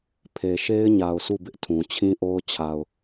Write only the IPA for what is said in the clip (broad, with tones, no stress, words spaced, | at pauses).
pʰe˨ʃe˦ɪ̯ɲa˨ʊ̯ su˦˨bɪ˦ʔtʰũ˨ t͡ɕʰĩ˦ʔo˦ʊ̯ t͡ɕʰa˨ʊ̯